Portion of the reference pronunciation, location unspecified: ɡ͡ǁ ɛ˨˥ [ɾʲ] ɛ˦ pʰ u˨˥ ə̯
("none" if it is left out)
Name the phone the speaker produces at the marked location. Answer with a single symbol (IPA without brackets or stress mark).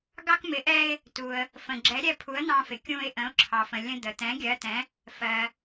ɾʲ